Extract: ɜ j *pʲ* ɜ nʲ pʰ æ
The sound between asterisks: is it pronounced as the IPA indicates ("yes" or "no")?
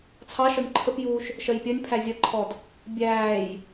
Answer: yes